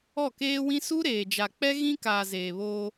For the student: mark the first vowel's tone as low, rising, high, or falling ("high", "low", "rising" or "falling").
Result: falling